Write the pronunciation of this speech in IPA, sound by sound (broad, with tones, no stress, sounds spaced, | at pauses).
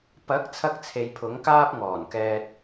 p ɐ˨˥ k̚ t͡sʰ ɐ˥ k̚ t͡sʰ e˨˧ j pʰ ʊ˨˥ ŋ k aː˥ p̚ ŋ ɔː˨˩ n k ɛː˧ t̚